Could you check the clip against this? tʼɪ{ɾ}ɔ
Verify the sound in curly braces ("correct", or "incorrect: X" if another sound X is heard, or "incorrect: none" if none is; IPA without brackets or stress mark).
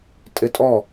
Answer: incorrect: tʼ